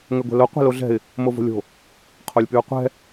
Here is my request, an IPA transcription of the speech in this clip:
ŋ ɛ ɡʷ ɛ̤ l o qʷ ɛ̤ l o ɮ ɛ̤ ɪ̯ | m o v o̤ lʲ o̤ | qʰ o lʲ p y ʊ̯ qʷ ɛ̤

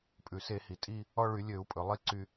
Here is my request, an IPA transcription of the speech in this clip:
pʼ ʉ˩ s e˧˩˧ h i˩ tʼ i˦˨ | ɔ˦˨ ɭ y˧˩˧ lʲ ø˧˩˧ u̯ pʼ ɵ˩ lˠ i˥ ǀ y˦˨

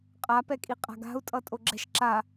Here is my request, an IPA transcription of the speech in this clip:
qʼ a p ɛ kʼ i qʼ a̤ ɡ a̤ u̯ tʼ ʌ tʼ o ɡ͡ǁ ɛ̤ ʃ ǁ a

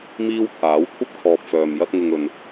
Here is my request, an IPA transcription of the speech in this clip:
m iː˥ w t̪ʰ aː˨˥ w kʷʰ ɐ˥ p̚ kʰ ɔː˨ p̚ f œː˨ m j ɐ˥ t̚ ŋ ɪ˧ ŋ ɵ˨ n

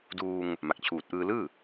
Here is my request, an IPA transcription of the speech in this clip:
d uː˧ ŋ | m a˨˩ k̚ t͡ɕʰ uː˨˩ t̚ ʔ ɯː˧ l ɯː˥˩

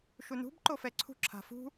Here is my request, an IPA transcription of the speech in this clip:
ʃ u n ṳ b ǃ o f ɛ ǀʰ ṳ ǁʰ a̤ f ṳ

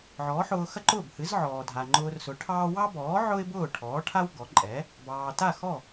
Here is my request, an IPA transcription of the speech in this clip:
ʕ ɔ˩˥ ħ ʊː˧ x ɐ˥ ǃ ʊː˥˩ b h ɨ˩˥ z ʕ ɔː˩ dʱ a˩ ŋ͡ǃ ʊː˧ r s ʊ˩˥ ʈʰ ɑː˥ w ɑ˥ b ɔː˩˥ ʕ ʊ˥ ɪ̯ b ʊː˥˩ ʈʰ ɔː˩˥ ʈʰ a˥ w ɡ ɔ˩˥ ǃʼ ɛ˩˥ | b ɑː˩ t a˥˩ x ɔ˥˩

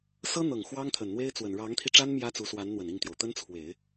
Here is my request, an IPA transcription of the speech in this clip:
s ɤ˥ n̪ ɤ˨˩ ŋ x w ɑ˥ ŋ t̪ʰ ə˨˩ n n̪ w e˥ ɪ̯ t͡s w ə˨˩ n ɻ ɑ˧˥ ŋ t̪ʰ i˧ ʈ͡ʂ a˥ n m j ä˥ t͡s u˧˥ s w a˧˥ n n̪ w ə˨˩ n i˥˩ ŋ t̪ j o˩ ʊ̯ t̪ ə˥ n t͡sʰ w e˨˩˦ ɪ̯

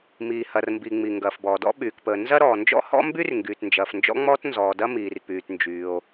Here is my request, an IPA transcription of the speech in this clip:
m iː˩ h ɐ˩ r m b i˩ ŋ͡m i˩ ŋ ɡ ɐː˩ f b ɔː˩ d ɔ̰˥ ɓ yː˩ k p əː˩ n z ɐ˥ ɾ ɔː˩ n d͡ʒ ɔ̰˥ h ɔ̰˥ m b y˥ r ŋ ɡ yː˩ t n d͡ʒ ɐː˩ f n d͡ʒ ɔ̰˥ ŋ͡m ɔː˥ t n z ɔː˩ d ɐ˥ m iː˩ r p yː˩ t n d͡ʒ yː˩ o̯

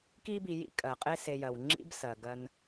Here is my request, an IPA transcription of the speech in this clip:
k i˦ b i˨ j ḭ˦ kʼ ɜ˩ qʼ e˦ s e˨ j ɜ˩ w ŋ͡ǁ ḭ˦ b s ɜ˩ ɡ ɜ˨ n

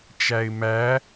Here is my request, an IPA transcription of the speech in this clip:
t͡ʃ æ ɪ̯ m æ

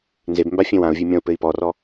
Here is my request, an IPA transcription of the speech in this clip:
n z e b m b a fʲ ẽ w ã u̯ vʲ e mʲ ɔ̃ u̯ p ɘ i̯ p ɔ r ɔ

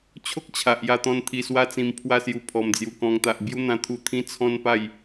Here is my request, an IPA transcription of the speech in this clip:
t͡ɕʰ o˦ k̚ t͡ɕʰ a˨ ʔ j a˧ t̪ ɔ̃˧ n t̪ʰ i˧ s w a˦ t͡s ĩ˧ m pʰ w a˥˧ s j u˧ pʰ ɔ˨˩ m d͡z j u˨˩ k ɔ̃˧ ŋ t̪ a˨ ʔ b j u˦ n̪ ã˧ t̪ʰ u˧ t̪ʰ ĩ˦ t͡sʰ ɔ̃˦ n p a˥˧ j

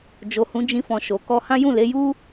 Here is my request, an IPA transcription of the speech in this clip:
d͡ʒ o˨ h ũ˨˦ d͡ʒ ĩ˧ f ɔ̃˨ ʃ o˨ k ɔ˧ h ã˦ j ũ˦˨ l e˨˦ j u˦

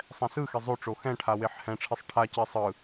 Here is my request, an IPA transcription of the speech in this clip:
sˤ ɛ̃ s ɯ x e zˤ o ʈ͡ʂ o x ɛ̃ ʈʰ a w e ħ h ɛ̃ ʈ͡ʂʰ i sˤ ʈʰ a c e sˤ ɯ

